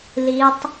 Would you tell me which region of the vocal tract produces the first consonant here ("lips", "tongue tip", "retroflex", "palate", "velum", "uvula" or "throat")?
tongue tip